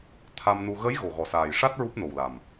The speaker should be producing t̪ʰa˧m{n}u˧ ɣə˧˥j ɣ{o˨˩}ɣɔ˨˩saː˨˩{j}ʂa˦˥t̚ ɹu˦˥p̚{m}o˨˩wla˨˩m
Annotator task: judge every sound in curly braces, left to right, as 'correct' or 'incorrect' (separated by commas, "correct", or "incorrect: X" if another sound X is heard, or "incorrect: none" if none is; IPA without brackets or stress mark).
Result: correct, correct, correct, incorrect: n